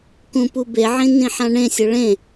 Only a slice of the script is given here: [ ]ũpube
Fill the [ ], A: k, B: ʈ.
A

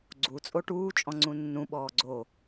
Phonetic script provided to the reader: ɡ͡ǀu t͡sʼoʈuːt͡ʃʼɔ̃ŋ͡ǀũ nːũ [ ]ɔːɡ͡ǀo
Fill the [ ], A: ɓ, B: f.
A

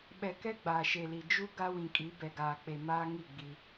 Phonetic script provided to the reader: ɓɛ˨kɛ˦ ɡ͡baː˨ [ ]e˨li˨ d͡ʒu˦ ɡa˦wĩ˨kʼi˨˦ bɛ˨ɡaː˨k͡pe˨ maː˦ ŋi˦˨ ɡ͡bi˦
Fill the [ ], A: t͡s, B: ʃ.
B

